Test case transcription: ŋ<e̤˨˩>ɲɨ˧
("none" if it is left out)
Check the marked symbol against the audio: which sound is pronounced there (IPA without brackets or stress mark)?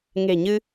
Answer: e̤˨˩